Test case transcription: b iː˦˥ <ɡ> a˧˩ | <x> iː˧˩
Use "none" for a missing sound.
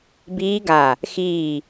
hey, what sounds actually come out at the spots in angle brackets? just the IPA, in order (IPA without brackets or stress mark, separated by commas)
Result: ɡ, x